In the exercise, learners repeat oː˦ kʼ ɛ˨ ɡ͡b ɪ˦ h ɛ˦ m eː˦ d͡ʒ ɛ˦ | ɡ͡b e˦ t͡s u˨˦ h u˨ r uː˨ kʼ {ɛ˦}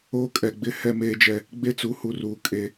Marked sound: incorrect: e˦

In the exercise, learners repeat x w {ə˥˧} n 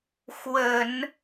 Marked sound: incorrect: ə˨˩˦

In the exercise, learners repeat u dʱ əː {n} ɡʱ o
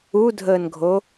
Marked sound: correct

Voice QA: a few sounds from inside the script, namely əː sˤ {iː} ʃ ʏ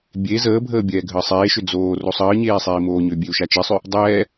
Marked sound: incorrect: eː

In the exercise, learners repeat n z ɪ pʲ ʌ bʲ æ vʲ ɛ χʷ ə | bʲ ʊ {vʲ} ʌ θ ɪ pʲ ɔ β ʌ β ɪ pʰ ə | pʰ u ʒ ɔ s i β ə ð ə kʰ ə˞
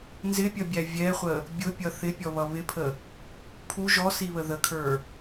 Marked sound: incorrect: pʲ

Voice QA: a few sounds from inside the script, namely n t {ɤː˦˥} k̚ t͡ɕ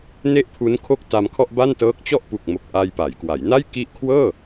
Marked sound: correct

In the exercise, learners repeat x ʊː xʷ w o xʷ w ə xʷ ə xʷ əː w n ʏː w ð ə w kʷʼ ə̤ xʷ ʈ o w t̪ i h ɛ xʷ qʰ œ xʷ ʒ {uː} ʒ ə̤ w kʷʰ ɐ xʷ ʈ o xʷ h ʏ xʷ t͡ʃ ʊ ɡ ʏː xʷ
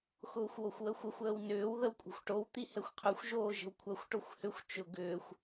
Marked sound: incorrect: oː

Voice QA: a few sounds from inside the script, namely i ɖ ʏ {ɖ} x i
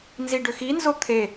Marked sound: incorrect: none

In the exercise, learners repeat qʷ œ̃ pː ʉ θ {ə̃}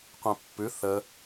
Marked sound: incorrect: ə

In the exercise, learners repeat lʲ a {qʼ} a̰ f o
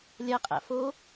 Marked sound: correct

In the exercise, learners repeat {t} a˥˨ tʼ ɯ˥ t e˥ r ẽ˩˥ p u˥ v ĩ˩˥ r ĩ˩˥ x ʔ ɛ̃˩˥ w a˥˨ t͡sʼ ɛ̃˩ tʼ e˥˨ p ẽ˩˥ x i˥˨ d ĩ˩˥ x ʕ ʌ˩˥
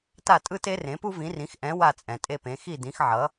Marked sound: correct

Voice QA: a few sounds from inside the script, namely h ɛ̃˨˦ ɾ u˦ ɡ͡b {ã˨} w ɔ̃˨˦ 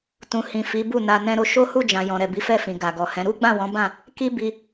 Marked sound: incorrect: ã˦˨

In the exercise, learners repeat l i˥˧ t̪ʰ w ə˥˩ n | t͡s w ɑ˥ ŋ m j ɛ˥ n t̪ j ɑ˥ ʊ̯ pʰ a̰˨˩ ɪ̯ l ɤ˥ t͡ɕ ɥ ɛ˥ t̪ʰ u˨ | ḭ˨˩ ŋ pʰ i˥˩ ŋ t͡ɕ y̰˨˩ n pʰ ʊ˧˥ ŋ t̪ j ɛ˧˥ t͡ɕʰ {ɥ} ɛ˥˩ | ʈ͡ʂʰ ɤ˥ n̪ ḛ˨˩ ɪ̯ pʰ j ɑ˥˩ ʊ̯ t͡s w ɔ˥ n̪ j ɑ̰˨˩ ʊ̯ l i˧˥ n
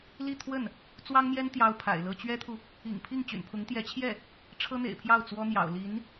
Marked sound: incorrect: j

